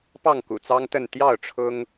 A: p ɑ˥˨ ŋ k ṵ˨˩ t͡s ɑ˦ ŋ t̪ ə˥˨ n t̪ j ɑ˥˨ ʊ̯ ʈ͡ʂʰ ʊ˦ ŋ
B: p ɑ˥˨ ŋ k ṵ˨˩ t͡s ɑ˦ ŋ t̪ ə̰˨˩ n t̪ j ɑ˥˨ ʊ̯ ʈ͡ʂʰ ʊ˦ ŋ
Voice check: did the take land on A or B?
A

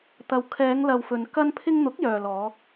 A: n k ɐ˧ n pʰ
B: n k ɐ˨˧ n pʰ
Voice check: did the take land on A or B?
A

